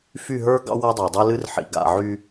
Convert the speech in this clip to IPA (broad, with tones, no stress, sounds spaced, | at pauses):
f y˦˨ ɦ ə˞˦ ɡ ɑ̰˦ w a˦ dˤ ɑ˨ dˤ ɨ˦ l ɨ˦ r ħ ḭ˨ ɡ a̰˨ ʕ y˦